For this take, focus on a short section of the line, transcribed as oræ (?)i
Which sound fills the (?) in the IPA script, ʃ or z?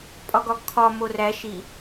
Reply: ʃ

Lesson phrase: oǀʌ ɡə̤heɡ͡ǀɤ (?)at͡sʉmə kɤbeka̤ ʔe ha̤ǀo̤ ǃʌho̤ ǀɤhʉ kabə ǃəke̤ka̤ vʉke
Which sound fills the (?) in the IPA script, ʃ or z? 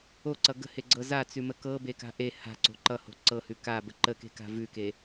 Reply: z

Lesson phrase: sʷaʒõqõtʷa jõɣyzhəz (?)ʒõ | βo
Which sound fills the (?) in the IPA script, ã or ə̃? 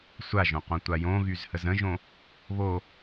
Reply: ə̃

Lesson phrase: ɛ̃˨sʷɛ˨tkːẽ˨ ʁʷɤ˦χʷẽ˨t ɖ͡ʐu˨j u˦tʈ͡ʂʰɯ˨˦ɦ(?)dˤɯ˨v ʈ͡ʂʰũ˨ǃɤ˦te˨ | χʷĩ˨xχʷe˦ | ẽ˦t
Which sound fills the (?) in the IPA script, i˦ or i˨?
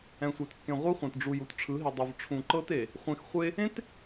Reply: i˨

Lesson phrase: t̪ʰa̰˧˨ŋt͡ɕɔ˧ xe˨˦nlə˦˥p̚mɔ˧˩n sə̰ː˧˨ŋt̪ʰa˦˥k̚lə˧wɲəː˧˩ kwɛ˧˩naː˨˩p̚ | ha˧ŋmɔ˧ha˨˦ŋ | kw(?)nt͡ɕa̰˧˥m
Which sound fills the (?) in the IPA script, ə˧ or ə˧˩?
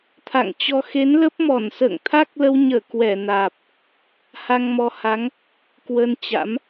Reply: ə˧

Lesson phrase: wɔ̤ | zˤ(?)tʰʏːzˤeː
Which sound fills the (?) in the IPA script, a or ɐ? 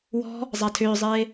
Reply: a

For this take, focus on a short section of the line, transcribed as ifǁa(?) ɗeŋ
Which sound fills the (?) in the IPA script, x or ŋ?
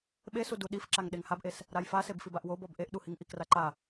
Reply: ŋ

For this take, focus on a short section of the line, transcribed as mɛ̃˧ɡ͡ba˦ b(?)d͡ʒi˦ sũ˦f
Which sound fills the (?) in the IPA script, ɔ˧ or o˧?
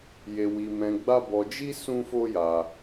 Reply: ɔ˧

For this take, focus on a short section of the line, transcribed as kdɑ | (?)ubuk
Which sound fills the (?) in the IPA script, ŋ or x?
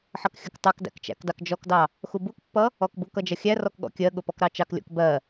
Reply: x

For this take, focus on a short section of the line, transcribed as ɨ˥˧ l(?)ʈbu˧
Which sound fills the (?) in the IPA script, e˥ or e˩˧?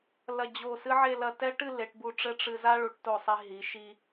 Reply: e˩˧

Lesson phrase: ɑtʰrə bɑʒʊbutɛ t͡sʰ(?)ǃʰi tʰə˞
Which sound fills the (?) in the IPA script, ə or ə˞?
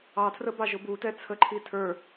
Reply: ə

